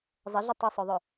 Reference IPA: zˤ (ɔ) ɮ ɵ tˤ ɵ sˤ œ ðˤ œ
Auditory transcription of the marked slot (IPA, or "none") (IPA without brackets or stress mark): ə